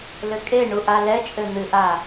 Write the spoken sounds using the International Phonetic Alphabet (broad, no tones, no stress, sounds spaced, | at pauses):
l ɘ kʼ e ɳ u ʔ a l ɛ t͡ʃʼ ɘ n̪ ɨ ʔ a